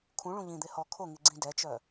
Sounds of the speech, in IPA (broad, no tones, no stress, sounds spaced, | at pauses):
kʰ ũ ɭ ũ ʎ ĩ d̪ e h ɔ kʰ o ŋ i ɡ͡ǀ ĩ d ɛ t͡ʃ œ